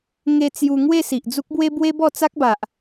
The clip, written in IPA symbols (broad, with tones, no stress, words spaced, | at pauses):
ŋe˧ t͡sju˧ ŋwe˥˧si˨ʔd͡zu˦k̚bwe˦ bwe˦bɔ˥˧t͡sa˦k̚ba˨ʔ